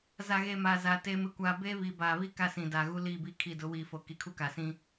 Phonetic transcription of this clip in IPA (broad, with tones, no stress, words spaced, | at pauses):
za˨ɣe˨ ma˨za˨ te˦mɪ˦kʷaː˦ be˦βi˨ baː˨βi˦ ka˦sĩ˨da˨ ɣu˦liː˦˨bi˦˨kʰi˦˨ dʊ˨˦wiː˨fo˨ ki˨kʰu˦ka˨sĩ˦